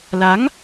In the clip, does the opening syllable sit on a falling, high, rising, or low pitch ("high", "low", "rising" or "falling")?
rising